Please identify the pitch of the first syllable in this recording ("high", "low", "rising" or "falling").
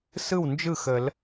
falling